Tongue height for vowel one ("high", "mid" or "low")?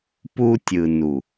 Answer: high